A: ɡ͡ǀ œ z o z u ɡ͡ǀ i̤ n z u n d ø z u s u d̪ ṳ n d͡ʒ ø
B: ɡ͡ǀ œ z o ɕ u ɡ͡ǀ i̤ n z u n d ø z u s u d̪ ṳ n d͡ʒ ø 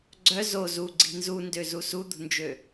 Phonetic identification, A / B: A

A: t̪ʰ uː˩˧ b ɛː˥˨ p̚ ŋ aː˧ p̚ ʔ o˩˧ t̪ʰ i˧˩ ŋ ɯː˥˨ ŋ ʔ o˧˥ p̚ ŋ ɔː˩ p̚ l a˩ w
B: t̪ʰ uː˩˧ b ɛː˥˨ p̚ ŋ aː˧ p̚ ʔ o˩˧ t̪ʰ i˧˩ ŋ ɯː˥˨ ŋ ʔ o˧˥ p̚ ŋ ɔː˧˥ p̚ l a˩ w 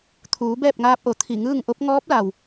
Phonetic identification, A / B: B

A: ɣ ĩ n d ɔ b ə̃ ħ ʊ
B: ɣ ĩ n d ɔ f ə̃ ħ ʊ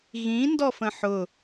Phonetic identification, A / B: B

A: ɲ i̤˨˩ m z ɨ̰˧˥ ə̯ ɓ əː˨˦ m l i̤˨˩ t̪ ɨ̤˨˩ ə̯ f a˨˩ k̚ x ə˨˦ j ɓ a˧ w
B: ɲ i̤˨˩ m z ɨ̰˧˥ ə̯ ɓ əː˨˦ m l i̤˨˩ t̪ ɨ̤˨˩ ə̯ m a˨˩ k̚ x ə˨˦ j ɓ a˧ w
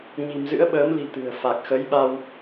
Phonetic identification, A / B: A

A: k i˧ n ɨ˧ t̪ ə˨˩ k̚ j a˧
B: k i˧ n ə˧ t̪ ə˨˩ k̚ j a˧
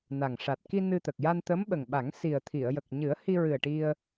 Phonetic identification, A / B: A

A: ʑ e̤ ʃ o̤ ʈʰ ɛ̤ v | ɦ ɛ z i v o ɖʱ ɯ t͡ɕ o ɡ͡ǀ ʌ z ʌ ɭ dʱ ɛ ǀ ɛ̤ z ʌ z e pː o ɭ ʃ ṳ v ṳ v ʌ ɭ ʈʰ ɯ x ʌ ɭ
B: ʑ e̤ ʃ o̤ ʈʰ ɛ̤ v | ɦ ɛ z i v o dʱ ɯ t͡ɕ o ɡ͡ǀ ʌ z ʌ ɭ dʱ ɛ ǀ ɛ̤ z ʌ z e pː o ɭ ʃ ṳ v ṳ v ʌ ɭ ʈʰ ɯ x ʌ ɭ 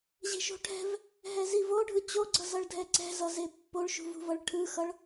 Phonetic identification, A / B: A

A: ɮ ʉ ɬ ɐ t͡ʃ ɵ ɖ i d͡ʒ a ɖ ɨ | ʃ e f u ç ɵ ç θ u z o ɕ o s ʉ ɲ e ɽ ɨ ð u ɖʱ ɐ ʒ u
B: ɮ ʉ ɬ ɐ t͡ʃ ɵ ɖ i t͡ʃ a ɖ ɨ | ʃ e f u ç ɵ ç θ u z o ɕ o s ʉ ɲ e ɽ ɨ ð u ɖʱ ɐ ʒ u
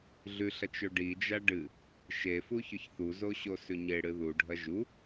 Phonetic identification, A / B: A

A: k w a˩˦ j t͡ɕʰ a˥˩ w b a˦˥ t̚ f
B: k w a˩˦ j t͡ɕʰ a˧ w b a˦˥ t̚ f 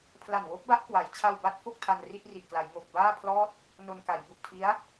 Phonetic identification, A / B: B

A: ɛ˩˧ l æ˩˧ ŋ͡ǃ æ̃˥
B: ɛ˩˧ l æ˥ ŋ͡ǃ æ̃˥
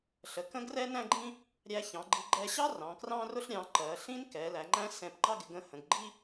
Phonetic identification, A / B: A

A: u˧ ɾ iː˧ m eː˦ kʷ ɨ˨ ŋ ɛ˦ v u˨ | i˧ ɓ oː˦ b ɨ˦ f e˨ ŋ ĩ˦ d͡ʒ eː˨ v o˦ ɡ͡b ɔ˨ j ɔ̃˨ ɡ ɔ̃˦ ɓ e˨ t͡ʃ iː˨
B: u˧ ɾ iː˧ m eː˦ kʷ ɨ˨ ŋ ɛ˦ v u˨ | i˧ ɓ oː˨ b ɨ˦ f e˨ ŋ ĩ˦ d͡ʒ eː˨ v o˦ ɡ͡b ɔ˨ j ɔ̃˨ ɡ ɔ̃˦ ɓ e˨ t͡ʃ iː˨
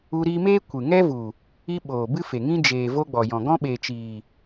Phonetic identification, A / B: B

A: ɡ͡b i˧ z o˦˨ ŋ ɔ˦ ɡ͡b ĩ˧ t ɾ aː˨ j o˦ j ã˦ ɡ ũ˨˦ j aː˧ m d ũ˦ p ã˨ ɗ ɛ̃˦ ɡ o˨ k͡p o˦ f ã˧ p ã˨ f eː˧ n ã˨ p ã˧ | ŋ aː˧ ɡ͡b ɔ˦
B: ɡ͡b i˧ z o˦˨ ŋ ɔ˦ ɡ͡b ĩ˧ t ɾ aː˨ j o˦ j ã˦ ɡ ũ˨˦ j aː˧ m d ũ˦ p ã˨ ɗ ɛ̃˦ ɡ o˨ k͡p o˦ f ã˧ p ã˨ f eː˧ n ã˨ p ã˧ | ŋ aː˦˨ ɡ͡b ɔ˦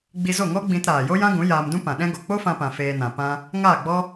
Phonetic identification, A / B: B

